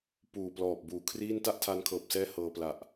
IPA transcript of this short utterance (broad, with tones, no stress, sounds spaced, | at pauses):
p uː˨˩ p l ɔː˨˩ p̚ b uː˩˦ kʰ r iː˥˩ n t a˥˩ ʔ tʰ a˧ n kʰ ɤː˨˩ p̚ s ɛː˦˥ h ɤː˧ p l a˨˩ ʔ